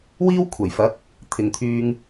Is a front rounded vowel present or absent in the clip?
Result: present